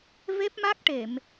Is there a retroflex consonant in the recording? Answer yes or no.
yes